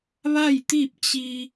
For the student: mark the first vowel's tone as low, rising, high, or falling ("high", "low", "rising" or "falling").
falling